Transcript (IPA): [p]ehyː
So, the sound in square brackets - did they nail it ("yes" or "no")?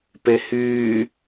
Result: yes